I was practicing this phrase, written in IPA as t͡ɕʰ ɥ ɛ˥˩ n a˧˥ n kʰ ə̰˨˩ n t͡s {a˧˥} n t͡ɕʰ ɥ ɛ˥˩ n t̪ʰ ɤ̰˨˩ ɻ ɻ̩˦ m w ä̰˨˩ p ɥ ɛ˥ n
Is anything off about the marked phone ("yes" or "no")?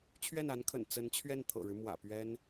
yes